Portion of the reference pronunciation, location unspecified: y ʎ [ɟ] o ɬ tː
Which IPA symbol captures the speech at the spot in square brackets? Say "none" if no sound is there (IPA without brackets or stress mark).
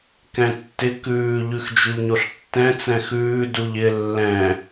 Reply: ɲ